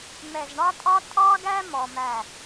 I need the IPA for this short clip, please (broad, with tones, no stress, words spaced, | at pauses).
mɛ˨zɳɑ˦tʼɑ˦ tʼɑ˦ɡæ˦ mɔ˧mæ˦˨